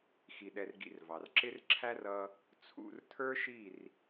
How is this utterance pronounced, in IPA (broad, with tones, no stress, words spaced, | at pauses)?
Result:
xi˧ɗɛ˧rɡḭ˧rvɑ˨r ǁɪ˦rǁʰæ˦r ʌ˦ | t͡sʰṵ˦˨rtʰə˞˦ʃi˦˨r